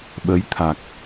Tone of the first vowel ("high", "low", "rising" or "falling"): rising